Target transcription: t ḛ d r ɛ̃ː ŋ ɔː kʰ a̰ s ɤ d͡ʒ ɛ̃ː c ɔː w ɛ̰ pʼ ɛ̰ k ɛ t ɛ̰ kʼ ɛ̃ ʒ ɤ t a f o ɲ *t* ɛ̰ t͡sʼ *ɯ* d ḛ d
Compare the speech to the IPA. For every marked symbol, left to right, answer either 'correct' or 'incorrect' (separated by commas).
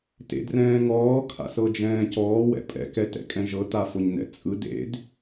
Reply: incorrect, correct